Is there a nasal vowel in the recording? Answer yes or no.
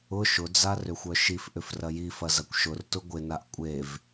no